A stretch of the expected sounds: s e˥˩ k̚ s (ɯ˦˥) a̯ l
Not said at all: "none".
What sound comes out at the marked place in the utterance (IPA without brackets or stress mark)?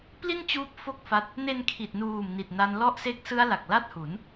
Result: ɯ˦˥